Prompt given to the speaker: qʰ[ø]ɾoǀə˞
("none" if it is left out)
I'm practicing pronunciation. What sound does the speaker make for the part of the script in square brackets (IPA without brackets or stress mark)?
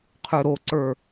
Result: ø